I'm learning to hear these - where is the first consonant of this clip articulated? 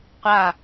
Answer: uvula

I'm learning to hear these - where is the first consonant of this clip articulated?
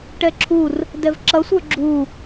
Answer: retroflex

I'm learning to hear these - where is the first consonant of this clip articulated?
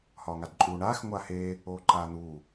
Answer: throat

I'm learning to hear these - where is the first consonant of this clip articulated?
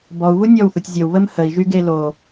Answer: lips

